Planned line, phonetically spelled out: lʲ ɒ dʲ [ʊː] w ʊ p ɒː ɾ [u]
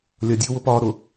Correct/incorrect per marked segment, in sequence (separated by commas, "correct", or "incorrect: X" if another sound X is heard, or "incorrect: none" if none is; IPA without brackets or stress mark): correct, incorrect: ʊ